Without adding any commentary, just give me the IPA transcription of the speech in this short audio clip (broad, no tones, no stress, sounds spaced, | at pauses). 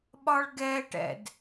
ɓ ɒ ɭ ɡ ɛ ʈ ɛ̰ d